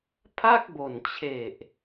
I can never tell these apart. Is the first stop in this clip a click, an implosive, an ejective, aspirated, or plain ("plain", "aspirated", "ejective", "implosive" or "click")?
aspirated